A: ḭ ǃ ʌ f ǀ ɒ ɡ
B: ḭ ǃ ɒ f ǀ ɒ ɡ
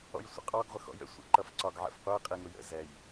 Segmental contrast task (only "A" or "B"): A